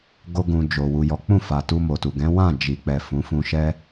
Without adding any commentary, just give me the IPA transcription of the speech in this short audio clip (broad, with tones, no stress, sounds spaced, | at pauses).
ɡ o˧ ɡ ũ˨ d͡ʒ o˨ w u˨ j ɔ˨˦ k͡p ũ˦˨ f a˨ t u˧ m o˨ t u˨ ɡ ɛ̃˨˦ w ã˦˨ d͡ʒ i˨ k͡p ɛ˨ f ũ˨˦ f ũ˧ ʃ ɛ˦